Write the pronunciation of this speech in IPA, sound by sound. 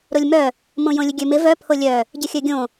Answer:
ɾ o lʲ m œ | m õ j õ lʲ ə ɡʲ ø m ɪ v œ pʰ o lʲ œ | ɟ ɪ xʲ œ ɡʲ õ

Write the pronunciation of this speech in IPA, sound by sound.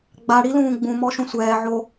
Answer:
ɡ͡b a ɽ i l ũː ɡ͡b ũ m ɔ ʃ ũ sʷ ɛː ʕ o

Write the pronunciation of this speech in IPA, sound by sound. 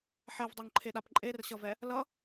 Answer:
ħ ɛ v dˤ o ŋ ǃʰ e ɗ a p ǃʼ e r ɕ ʌ v ɛ | l ʌ

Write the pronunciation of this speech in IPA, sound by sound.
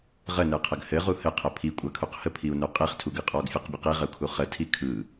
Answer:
ʁ ə n ɯ qʰ ə ɡ h ɘ ʁ u h ɘ qʰ ə pʰ i kʷʼ a kʰ u q h ə pʰ i u̯ n u qʼ i χ tʰ u ɡ ɯ qʼ ɔ ɡ fʲ ɔ q bʲ ə q i ʁ ə u̯ kʰ u χ ə tʰ i kʰ ɯ

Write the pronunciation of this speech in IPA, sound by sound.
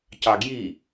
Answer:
c ɑ ɡ j i

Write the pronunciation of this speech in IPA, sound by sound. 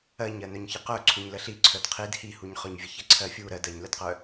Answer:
ɜ ɲ ɜ n œ ɲ ç ə q œ ǀʰ u ɲ l ə ɬ i ǀʰ œ d qʰ i d h i h u ɲ χ œ ɲ vʲ ə ç ə ǀʰ ɜ fʲ u ɾ ɜ d ɜ ɲ l ə d q œ

